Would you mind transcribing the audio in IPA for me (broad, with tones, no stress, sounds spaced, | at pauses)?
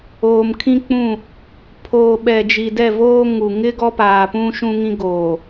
oː˨ m kʰ ĩ˦ k͡p ũ˦˨ | pʰ oː˨ ɓ ɛ˨ d͡ʒ i˨ d ɛ˦˨ v oː˦ ŋ u˨ ŋ ɪ˦ ɡ ɔ˦ p aː˨ p ũ˦ ʃ ũ˦ ŋ ĩ˦ ɡ oː˨